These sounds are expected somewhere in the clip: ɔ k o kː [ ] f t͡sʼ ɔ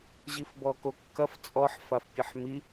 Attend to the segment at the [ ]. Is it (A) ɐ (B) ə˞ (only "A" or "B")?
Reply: A